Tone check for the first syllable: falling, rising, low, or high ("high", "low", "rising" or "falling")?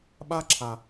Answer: high